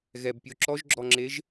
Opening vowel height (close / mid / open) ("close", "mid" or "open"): mid